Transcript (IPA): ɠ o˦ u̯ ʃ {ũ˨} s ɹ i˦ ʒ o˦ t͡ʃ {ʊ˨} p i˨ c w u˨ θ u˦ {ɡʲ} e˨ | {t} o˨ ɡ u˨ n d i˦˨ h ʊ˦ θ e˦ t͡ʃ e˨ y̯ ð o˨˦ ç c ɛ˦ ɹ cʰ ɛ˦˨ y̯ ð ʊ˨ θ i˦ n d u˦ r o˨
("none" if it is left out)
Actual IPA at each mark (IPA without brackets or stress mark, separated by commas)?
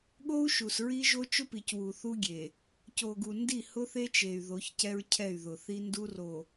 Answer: u˨, ʊ˦, ɡʲ, c